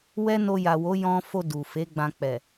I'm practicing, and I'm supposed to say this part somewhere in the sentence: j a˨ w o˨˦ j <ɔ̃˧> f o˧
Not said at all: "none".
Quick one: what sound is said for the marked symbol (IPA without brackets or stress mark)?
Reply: ɔ̃˧